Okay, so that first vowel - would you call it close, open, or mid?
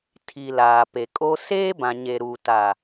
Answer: close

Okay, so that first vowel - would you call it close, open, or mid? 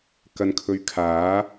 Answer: open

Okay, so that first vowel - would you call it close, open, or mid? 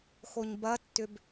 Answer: mid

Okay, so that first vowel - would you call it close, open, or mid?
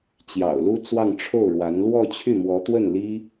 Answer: open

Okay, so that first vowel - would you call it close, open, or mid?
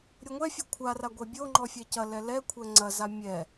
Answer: mid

